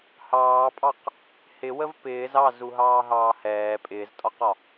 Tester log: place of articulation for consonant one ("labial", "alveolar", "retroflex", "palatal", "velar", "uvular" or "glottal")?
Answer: glottal